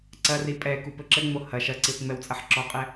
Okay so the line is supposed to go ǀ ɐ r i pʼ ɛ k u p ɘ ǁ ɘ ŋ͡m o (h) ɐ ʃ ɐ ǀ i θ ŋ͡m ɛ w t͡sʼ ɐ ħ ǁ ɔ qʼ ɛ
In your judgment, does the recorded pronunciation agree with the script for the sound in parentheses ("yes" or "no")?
yes